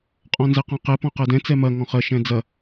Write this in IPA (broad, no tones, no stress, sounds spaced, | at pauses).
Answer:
qʼ ɔ̃ n z ɛ q ɔ̃ q ɛ p ɔ̃ q ɜ d ɛ̃ t͡s ɛ m ɐ ŋ ɔ̃ χ ɜ ʃ ɛ̃ d͡z ɐ